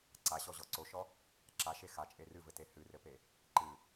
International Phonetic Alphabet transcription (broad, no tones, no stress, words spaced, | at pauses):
ǀaɕɔʑɔ ǀoʃɔ | ǁaʃe xat͡ʃʼe rɨvɘte hɨrɘpe | ǃɨ